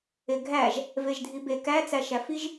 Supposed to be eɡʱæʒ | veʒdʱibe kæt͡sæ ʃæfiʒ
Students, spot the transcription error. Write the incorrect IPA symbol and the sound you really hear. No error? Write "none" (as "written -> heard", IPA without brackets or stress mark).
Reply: none